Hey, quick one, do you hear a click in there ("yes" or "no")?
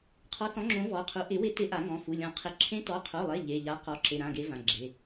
yes